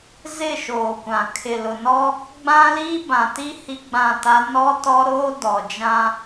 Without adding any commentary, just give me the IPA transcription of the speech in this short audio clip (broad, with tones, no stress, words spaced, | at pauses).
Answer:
zɪ˦˨ʃoː˨kʷã˨ kʰɪ˨lʊ˨nɔ˦ | ɡ͡bã˦li˦ bã˨ti˦ hi˦ɡ͡bã˦˨ta˦ nɔ˦tɔ˦ɾoː˦ dɔ˨d͡ʒã˦